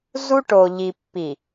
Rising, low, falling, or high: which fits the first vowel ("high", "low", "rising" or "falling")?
high